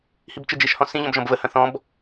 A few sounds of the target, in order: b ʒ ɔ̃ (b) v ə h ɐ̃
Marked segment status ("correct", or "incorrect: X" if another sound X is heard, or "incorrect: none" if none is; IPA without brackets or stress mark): correct